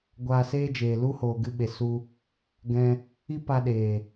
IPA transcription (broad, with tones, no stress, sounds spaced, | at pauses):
ɡʷ aː˧ s eː˦ d͡ʒ eː˨ l u˦ h oː˨ ɡ ɨ˧ ɓ e˨ s u˧ | ɡ ɛ̃˦ | i˦ p a˧ ɗ eː˨